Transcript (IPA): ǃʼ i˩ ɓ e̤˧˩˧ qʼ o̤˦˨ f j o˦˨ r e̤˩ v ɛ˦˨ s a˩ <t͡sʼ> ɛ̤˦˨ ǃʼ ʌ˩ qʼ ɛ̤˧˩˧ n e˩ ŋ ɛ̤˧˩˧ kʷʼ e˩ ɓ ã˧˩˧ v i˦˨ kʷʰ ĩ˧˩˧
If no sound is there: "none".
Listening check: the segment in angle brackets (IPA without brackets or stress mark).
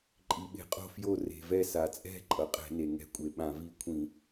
t͡sʼ